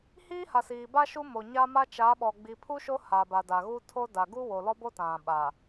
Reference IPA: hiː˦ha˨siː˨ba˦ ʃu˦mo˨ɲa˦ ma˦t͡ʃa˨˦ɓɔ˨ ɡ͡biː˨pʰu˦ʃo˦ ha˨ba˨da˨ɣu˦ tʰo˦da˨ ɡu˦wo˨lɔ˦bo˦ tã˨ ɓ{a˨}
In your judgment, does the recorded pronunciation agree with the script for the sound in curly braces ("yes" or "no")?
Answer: yes